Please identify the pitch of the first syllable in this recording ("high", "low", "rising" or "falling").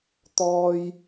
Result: high